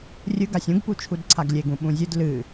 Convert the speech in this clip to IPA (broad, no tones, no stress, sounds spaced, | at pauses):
rʲ ɨ ɡ a sʲ ũ ɡ p u t͡ʃʰ u d ǀʰ a ɡ lʲ e ɡ ũ ɓ ũ zʲ ɨ d l ɨ